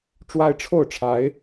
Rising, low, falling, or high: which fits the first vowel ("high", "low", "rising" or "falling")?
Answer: high